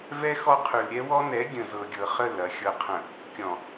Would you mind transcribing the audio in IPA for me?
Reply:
v ɛ˦ x ɔ˦ qʰ ʉ˨ l ɾʲ ɛ˦ w ɔ˦ n ɛ˨˦ ɡʲ ə̃˨ z ɤ˨ ɡʲ ɤ˨ χ ə˦˨ l ɐ˨ xʲ ɤ˨ qʰ ə̃˨ | kʲ ɔ̃˨

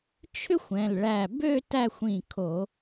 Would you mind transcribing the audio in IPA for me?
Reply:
t͡ʃʰ ʏ˥ xʷ ɛ̃˩˧˩ l ɭ æ˧˩ b ø˥˧ t æ˥˧ xʷ ĩ˧˩ kʰ o˧˩˧

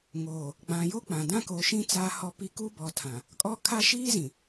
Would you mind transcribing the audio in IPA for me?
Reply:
ŋ oː˨ | ɡ͡b ã˨ j o˦ k͡p ã˨ d ã˦ k o˨˦ ʃ ĩ˦ t͡s aː˦ h ɔ˦ p i˦ k u˦ b ɔ˨ tʰ ã˨ | kʼ ɔ˦ kʰ a˦ ʃ iː˦ z ĩ˨

